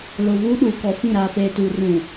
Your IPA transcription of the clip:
l o˨ v uː˦ ɗ uː˨ k ɔ˨ f ĩ˦˨ ɾ aː˨ f eː˨ t uː˨ r ũ˨

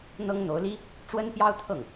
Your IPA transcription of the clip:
n̪ ɤ˥ ŋ n̪ o˧˥ ʊ̯ l i˥ | ʈ͡ʂ w ə˥ n p j ɑ˥ ʊ̯ t̪ʰ ɤ˥˩ ŋ

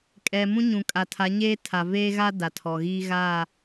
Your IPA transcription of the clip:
kʼ ɛ˨ m ũ˦ ɲ ũ˨ kʼ a˨ tʰ a˨˦ ɲ eː˦ tʰ a˨ v eː˦ ɣ a˦ d a˨ tʰ ɔ˨ ɣ iː˦ ɣ aː˦˨

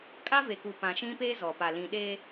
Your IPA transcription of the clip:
kʼ a˦ v e˨ k u˨ p ã˨ ʃ ĩ˦ p eː˦ z ɔ˨ p a˨ l ĩ˨ ɗ e˦

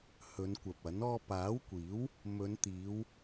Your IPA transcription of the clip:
h ɵ˨˧ n kʷ ɐ˨ p̚ ɐ˨˥ n ɔː˧ p aː˨˥ w kʷ iː˨˥ w | m ɵ˨˧ n t̪ iː˨˧ w

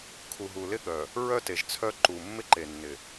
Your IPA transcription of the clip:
kʰ u˨ ɦ u˨ l ɪ˦ ɠ œ˨ | ɹ œ˦ t e˨ ʒ t͡sʰ œ˦ ǃ u˨ mː ɪ˦ ǃ e˨ nː ɪ˨

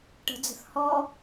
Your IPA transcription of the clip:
ʈ ə̤ d͡z ə̤ θ h ɔ

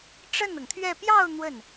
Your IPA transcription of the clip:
ʈ͡ʂ ə˥˩ n ɤ˩ ŋ t̪ʰ ɥ ɛ˥˧ p j ɑ˥˧ ʊ̯ n̪ w ə˥˩ n

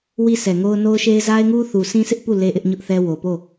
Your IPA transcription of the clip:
w i˦ s ɛ˨ ŋ o˦ ʊ̯ n o˦ ʊ̯ ʃ e˦ ɪ̯ z a˦ ɪ̯ ŋ u˦ θ u˨ s ĩ˦ sʰ ɪ˦ ʔ p u˦˨ l e˦ ʔ ɪ˦ ʔ ɲ ʊ˦ ʔ θ ɛ˦ w o˨ p o˦˨

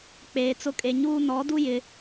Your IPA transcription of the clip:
k͡p eː˨ t͡s ʊ˦ kʼ e˨ ɲ uː˦ n ɔ˨˦ d u˦ j ɪ˦

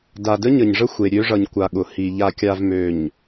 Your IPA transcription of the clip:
d a˨ d ə˦ ɲ ə˨ ɲ ʐ ə˦ xʷ e˨ ɾʲ ø˦ ʐ ʌ˨ ɲ kʷ a˨ ɠ ʊ˨ h i˨ ʎ a˨ kʲ a˨ v m ø˨ ɲ

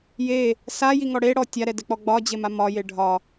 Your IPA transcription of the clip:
j e | s a j i ŋ ɔ ɽ e ɽ ɔ tʲ a ɾ ɛ d ɛ k͡p ɔ ɡ͡b ɒ d͡ʑ e m a m ɒ j e ɖʱ ɒ

